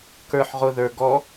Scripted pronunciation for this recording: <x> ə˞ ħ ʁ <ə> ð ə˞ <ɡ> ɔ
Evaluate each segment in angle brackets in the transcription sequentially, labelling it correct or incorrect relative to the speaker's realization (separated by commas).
incorrect, incorrect, correct